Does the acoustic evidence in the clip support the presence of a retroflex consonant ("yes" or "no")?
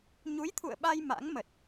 no